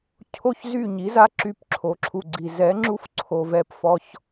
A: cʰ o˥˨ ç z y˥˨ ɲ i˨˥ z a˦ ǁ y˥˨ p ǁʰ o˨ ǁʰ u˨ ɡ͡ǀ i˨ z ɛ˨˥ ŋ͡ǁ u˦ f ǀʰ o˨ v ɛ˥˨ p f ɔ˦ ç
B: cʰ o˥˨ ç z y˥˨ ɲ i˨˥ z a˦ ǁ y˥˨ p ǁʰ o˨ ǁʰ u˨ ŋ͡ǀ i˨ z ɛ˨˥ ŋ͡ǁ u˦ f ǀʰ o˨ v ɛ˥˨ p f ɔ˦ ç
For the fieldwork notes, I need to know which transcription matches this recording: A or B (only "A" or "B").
A